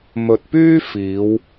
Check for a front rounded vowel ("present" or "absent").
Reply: present